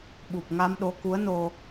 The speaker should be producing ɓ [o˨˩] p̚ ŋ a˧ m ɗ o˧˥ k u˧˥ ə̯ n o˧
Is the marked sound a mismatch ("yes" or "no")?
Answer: yes